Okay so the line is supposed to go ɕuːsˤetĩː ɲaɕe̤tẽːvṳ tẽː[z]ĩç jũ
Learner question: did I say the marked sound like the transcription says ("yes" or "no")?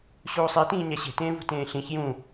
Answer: no